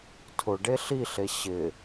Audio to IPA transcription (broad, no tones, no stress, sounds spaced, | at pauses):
tʰ ʊ ɖ e ɬ i ɬ e ɕ ɪ